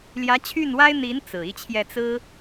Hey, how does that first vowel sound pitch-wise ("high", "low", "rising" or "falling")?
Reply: rising